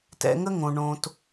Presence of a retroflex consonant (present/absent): present